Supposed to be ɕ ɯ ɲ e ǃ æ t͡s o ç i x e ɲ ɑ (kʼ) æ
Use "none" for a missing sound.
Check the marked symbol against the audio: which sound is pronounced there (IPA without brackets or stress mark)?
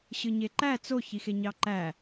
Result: ǃ